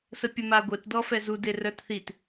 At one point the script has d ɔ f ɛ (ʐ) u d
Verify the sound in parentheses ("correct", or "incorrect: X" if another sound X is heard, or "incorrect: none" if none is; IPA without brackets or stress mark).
incorrect: z